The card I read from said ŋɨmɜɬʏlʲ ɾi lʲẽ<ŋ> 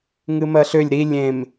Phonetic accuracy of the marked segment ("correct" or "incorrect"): incorrect